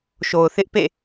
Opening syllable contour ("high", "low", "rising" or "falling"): low